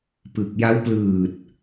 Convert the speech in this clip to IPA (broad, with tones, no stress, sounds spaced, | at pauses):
p ɯ˨˩ k̚ j a˦˥ w p l ɯː˨˩ t̚